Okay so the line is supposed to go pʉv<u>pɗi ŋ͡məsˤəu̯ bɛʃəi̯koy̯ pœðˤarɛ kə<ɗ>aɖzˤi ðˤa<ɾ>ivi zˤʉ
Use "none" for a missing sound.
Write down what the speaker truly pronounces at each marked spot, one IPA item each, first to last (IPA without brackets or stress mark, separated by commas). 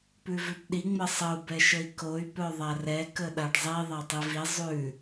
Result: ʉ, ɗ, tˤ